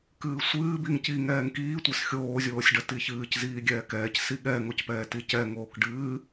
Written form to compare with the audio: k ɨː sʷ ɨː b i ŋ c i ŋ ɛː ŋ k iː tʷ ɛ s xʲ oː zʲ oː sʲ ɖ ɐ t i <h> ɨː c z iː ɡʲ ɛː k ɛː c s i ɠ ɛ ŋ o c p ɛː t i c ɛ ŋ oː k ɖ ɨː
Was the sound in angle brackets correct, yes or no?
no